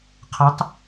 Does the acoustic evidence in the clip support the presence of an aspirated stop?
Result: yes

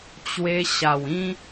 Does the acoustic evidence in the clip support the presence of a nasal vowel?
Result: yes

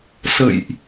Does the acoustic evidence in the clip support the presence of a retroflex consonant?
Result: no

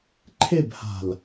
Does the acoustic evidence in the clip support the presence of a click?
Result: yes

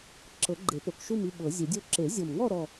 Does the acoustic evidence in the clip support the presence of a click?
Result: yes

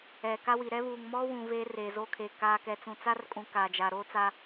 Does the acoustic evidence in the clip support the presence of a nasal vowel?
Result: yes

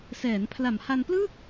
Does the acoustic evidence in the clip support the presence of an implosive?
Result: no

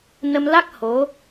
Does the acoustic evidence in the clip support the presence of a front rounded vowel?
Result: no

